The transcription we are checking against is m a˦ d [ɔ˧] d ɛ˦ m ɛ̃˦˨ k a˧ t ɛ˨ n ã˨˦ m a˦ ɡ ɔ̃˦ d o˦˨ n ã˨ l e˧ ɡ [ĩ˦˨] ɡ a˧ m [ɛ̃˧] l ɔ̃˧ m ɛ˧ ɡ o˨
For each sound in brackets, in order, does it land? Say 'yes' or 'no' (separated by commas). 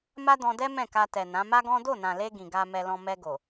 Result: no, no, no